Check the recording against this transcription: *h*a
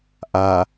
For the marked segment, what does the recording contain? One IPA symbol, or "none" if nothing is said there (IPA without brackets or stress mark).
ʔ